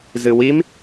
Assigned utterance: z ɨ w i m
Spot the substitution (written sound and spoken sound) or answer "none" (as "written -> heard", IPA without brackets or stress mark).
none